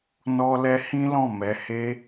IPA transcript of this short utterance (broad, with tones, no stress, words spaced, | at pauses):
nɔ˧lɛ˧ hĩ˦lɔ̃˦˨ mɛ˧ he˧